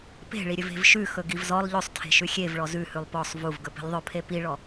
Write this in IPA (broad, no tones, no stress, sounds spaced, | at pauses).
p e̤ ɭ i ɾʲ ɵ v e̤ v ʃ ʉ x ɵ ɡ i v z ɔ lˠ ʎ ɵ sˤ tʰ e̤ ʃ ʉ xʲ e v ɭ ɔ z ʉ h ʉ lˠ p ɔ sˤ v u v ɡ ɵ p i̤ lʲ ðˤ ɵ pʰ e p i ɭ ɔ